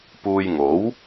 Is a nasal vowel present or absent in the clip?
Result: absent